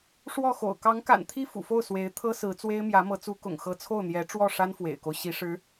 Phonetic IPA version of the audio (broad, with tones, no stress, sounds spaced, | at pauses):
ʂ w ɔ˥˩ x o̰˨˩ ʊ̯ k ɑ˧˥ ŋ k a̰˨˩ n t̪ʰ i˥ f ṵ˨˩ f o˥˩ ʊ̯ s w e˧˥ ɪ̯ t̪ʰ ɤ˥ s ɹ̩˧˥ t͡s w e˥ ɪ̯ m j ä˧˥ m ɤ˧˥ t͡s u˧˥ k ʊ̰˨˩ ŋ x ɤ˧˥ t͡sʰ o˥˩ ʊ̯ n̪ j ɛ˧˥ ʈ͡ʂ w ɔ˥˩ ʂ a˥ n f w ḛ˨˩ ɪ̯ k o˦ ʊ̯ ɕ i˧˥ ʂ ɻ̩˧˥